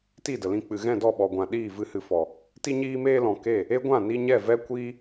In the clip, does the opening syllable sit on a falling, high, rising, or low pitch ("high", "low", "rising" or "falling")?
falling